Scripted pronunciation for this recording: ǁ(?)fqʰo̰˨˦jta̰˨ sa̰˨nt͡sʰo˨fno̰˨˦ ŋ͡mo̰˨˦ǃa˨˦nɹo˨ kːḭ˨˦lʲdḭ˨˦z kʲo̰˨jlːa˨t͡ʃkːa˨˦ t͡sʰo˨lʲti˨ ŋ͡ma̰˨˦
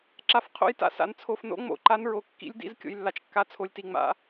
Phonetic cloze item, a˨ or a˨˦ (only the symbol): a˨